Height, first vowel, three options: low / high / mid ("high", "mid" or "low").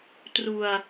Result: high